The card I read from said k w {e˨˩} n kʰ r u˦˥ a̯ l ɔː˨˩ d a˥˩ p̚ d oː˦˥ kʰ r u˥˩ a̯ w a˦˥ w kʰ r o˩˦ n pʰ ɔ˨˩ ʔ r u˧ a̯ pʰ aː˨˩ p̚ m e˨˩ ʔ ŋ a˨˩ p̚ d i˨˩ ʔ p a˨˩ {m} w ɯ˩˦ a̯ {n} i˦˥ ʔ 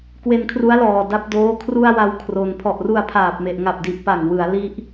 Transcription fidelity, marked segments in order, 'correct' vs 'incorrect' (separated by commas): incorrect, incorrect, incorrect